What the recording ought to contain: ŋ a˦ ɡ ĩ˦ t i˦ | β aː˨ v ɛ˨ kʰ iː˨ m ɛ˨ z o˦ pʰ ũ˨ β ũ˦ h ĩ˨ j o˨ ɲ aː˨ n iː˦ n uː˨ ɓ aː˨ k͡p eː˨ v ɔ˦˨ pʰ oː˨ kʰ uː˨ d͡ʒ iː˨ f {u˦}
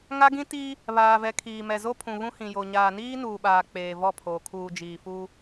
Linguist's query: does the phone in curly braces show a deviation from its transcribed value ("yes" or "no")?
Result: no